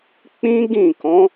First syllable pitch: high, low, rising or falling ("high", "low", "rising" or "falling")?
high